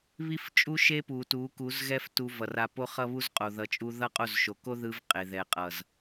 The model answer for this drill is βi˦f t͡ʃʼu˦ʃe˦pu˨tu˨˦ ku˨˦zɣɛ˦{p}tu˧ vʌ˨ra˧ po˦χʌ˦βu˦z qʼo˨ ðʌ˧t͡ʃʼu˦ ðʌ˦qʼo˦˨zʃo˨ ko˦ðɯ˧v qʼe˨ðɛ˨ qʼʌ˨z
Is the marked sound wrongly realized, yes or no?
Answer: yes